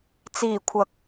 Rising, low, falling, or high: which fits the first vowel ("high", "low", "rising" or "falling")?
low